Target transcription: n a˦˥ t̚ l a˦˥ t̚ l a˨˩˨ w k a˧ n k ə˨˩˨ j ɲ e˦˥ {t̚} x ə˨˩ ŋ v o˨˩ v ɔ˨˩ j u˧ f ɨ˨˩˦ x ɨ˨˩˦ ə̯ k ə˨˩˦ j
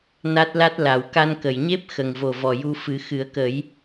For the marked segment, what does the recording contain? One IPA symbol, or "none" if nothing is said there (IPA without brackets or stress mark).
p̚